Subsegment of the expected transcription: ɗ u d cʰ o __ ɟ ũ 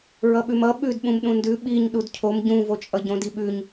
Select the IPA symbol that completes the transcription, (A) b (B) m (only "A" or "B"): B